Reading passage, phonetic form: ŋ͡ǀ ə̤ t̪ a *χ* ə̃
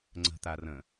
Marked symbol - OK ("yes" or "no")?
no